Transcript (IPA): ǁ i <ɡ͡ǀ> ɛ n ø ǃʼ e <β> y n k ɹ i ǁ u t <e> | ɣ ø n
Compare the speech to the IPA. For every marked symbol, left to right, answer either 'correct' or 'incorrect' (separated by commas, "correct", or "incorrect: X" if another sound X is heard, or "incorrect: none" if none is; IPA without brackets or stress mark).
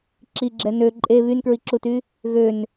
incorrect: ɡ͡ǁ, correct, incorrect: y